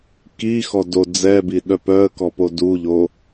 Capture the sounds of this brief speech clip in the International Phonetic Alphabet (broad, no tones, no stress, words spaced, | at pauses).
kixɔ do d͡zɛbiɗœ pœə̯kɔpo duʎo